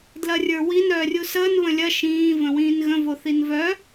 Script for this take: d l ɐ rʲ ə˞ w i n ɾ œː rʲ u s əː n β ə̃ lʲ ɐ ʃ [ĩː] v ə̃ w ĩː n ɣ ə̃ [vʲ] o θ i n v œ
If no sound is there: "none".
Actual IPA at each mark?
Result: ĩː, v

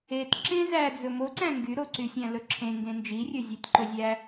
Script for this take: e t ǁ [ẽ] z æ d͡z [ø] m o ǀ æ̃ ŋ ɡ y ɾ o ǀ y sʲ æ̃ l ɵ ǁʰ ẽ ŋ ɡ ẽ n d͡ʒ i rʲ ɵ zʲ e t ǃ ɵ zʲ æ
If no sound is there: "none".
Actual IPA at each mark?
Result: ẽ, ɵ

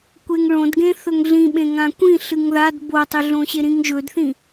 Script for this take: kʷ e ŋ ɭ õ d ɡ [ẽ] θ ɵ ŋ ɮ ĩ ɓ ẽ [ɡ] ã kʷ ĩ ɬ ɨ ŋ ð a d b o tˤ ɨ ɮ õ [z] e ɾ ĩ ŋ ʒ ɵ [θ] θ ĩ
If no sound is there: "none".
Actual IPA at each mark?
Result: ẽ, ŋ, ɕ, d

